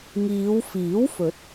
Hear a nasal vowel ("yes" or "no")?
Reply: no